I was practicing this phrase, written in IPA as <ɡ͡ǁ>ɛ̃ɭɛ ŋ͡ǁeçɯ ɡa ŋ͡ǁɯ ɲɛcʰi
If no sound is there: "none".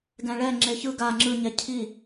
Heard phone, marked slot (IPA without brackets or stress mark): ɡ